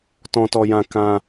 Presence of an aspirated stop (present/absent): absent